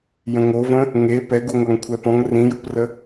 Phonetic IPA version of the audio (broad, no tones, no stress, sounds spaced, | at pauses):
j ə̃ ŋ o v ə̃ | ŋ e p ɛ ɡ u ŋʷ a ŋ kʷʰ ɛ p ɔ̃ ŋ r ĩ j u p r ə